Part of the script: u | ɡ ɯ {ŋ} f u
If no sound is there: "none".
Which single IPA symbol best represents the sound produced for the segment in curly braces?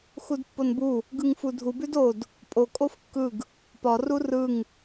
ŋ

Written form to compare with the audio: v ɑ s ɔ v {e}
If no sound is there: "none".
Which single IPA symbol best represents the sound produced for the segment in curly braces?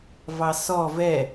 ɛ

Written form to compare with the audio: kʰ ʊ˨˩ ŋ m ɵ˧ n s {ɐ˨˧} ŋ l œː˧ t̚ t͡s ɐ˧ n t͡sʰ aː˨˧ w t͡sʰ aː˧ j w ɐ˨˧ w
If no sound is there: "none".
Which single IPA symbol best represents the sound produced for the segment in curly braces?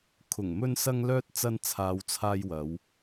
ɐ˧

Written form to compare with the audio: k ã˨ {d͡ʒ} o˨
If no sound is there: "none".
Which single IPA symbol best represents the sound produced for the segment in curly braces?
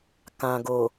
ɡ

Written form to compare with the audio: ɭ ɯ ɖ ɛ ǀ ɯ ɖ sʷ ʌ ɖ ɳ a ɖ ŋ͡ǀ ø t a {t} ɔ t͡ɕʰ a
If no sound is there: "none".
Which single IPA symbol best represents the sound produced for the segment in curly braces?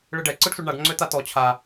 t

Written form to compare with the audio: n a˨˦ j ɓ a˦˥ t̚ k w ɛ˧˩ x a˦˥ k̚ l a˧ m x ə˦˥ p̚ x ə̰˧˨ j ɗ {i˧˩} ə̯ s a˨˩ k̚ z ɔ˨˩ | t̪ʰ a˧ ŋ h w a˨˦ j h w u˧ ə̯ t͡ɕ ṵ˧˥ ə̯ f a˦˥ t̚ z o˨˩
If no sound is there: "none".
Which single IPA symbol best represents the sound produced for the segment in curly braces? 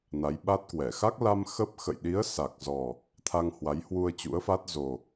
i˨˦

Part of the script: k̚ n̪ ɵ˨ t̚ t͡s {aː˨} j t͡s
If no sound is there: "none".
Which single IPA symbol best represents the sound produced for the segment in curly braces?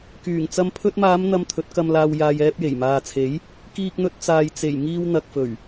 aː˨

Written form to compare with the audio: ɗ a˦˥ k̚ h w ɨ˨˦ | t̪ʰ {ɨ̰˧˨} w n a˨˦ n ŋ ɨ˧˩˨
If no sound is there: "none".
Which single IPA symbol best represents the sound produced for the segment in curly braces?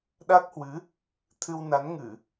ɨ˧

